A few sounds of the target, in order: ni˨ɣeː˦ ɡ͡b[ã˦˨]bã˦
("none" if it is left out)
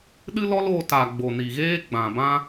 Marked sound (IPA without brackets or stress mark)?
ã˨